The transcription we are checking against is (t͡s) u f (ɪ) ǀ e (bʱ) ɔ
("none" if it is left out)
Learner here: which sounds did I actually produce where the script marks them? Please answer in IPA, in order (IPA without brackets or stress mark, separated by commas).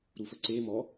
ɾ, ə, m